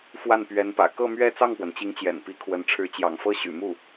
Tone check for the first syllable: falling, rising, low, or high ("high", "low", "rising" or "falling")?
falling